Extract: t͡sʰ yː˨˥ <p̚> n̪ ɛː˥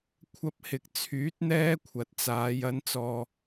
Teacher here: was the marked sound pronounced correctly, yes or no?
no